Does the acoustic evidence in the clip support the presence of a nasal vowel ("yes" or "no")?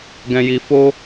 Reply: yes